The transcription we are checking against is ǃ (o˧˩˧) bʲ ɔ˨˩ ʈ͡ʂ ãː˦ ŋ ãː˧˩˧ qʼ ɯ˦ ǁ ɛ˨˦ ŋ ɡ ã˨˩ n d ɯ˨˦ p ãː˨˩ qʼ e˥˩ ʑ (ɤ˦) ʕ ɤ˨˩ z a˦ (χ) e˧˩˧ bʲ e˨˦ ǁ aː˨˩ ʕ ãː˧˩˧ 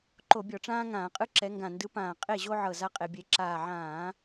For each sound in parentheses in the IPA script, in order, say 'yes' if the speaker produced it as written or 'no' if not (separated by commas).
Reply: yes, no, no